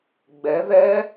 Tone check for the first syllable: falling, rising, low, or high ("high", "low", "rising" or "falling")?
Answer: rising